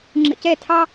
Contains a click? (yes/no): yes